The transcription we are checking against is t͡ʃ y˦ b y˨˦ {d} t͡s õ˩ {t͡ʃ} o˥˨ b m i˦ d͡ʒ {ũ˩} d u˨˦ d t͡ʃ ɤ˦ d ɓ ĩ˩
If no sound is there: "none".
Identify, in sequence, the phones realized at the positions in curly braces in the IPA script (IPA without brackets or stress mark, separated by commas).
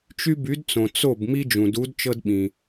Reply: d, t͡s, ũ˩